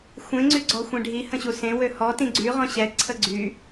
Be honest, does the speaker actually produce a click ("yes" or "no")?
yes